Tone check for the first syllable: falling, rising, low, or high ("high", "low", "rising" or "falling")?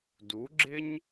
rising